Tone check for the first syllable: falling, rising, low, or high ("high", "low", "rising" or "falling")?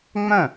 falling